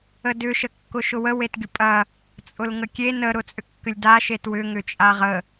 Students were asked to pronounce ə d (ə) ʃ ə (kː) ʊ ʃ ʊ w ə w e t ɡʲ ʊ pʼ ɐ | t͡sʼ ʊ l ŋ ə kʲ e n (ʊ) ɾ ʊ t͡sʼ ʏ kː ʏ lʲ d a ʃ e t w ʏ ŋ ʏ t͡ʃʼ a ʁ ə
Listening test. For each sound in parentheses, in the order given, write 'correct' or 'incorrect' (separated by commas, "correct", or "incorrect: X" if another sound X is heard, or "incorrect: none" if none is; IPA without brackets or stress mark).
incorrect: ʏ, correct, incorrect: ə